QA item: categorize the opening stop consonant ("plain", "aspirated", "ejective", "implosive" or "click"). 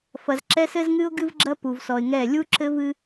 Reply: click